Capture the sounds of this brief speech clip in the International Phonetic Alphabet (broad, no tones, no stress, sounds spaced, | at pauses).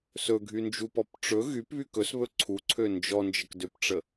s ɵ ɡʱ y n d͡ʒ u p ɔ p ʈ͡ʂ ɵ ɣ y p β y k ɵ s β ɵ ǀʰ u ǀʰ ø n d͡ʒ ɔ n d͡ʒ ə k d ø p ʈ͡ʂ ə